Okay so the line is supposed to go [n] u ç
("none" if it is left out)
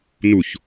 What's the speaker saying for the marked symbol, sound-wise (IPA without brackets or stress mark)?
n